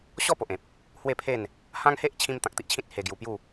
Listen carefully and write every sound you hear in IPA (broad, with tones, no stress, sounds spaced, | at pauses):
ɕ ɔ˥˧ p o˨ ʔ ẽ˨ p̚ | h w e˥˧ pʰ e˥˧ n | h ã˦ ŋ h e˦ ʔ t͡ɕʰ ĩ˦ m t̪ ã˨ k̚ t̪ i˦ ʔ t͡ɕʰ ĩ˦ t̚ h e˧ ɡ j u˧ p j u˥˧